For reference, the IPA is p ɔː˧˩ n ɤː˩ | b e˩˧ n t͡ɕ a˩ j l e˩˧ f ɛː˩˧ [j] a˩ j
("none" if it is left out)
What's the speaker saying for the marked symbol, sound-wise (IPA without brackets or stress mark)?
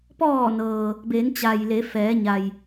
ɲ